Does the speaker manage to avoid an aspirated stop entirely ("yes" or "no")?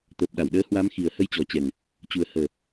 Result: yes